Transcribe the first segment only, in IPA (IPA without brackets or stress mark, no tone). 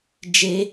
d͡ʒ